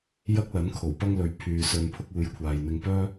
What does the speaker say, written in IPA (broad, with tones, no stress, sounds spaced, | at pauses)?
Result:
j ɐ˥ k̚ l ɐ˨˥ n kʰ o˨˩ w p ɐ˥ ŋ l ɵ˨ ɥ pʰ yː˨ s ɵ˧ n pʰ ʊ˥ k̚ uː˨˧ j kʷʰ aː˨ j n̪ ɪ˧ ŋ p œː˥